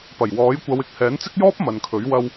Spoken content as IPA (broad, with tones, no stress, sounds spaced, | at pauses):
p ɐ˨˩ j w ɔː˨˥ j kʷ ɐ˨˧ w ɪ˨ k̚ h ɛː˨˥ n t͡s ɪ˥ k̚ j ɔː˥ p̚ m ɐ˨ n kʰ ɵ˨˥ ɥ w ɐ˧ w